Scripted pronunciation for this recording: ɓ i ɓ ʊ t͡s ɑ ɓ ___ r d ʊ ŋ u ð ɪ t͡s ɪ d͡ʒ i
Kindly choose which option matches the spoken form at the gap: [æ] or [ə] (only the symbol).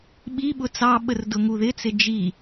ə